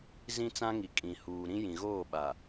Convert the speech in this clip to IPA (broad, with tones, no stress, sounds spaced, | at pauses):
z ĩ˦ t͡s ã˦ ŋ i˨ kʼ ĩ˨ h uː˨ ɾ ĩ˦ j ĩ˨ ɣ oː˦˨ ɓ a˨